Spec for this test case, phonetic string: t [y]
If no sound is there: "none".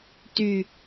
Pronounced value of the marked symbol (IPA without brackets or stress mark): y